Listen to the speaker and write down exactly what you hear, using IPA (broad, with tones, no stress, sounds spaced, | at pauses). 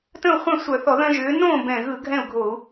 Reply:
t ə̃˥˨ u̯ χʷ œ̃˥˨ sʷ œ˧˩˧ θ ɔ˧˩˧ ð œ̃˦ ʒ ʏː˨˥ n õː˥˨ b ɛ̃˨˩ ɣ ɯ˧˩˧ ɡʱ ɛ̃˥˨ u̯ ɡʱ o˧˩˧ u̯